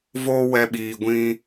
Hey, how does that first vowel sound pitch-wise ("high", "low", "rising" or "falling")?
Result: high